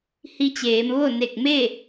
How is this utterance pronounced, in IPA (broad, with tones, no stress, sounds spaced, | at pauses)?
h i˧ t͡ɕ eː˩˧ m ʋ o˥˨ n e˧˩ k̚ m e˥˨